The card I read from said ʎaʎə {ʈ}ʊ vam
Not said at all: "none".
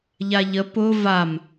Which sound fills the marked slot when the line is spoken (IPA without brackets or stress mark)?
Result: p